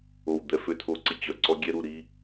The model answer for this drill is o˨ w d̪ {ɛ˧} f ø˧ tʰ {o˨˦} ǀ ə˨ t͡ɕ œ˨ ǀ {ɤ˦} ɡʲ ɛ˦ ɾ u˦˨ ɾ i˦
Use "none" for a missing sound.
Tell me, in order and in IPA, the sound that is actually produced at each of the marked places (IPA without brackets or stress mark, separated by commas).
ɛ˨, o˨˦, ɔ˦